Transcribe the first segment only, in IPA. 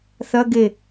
θ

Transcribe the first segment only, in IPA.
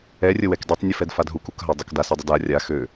ɛ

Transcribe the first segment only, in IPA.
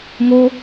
ŋ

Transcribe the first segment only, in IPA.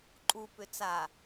ǃʼ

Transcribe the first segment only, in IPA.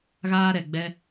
ɣ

